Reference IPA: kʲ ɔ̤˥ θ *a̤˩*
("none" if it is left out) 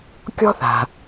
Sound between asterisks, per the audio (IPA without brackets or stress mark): a̤˩